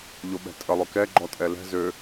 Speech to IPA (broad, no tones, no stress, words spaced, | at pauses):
ʎoɓɛ̤tʼə lˠøkɛ ɡ͡ǃɔtʼɛlɛ̤ zø